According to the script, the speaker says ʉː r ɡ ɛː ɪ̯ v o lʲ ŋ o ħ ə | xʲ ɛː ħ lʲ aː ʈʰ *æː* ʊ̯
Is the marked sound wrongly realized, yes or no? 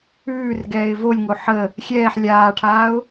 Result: yes